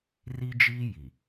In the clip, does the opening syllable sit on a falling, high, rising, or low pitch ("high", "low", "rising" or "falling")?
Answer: high